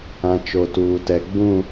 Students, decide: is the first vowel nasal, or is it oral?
nasal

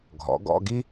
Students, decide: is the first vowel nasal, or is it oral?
oral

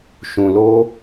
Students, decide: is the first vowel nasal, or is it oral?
nasal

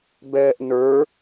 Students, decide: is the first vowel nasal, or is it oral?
oral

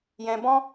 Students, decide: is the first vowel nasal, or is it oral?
nasal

